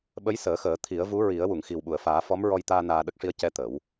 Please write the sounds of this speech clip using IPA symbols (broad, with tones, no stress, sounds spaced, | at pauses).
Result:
ɓ ə˧˥ j s əː˨˩˦ x əː˨˩˦ t̪ʰ i˨˩˦ ə̯ v u˧˥ ɹ i˨˩˦ ə̯ w u˨˩˨ ŋ x i˨˩ w ɓ u˨˩˨ ə̯ f aː˨˩˦ f ɔ˧˥ m ɹ ɔ˧ j t̪ aː˧ n aː˧ ɗ ə˦˥ k̚ ʂ i˧˥ ə̯ c ɛ˧ t̪ ə˨˩˦ w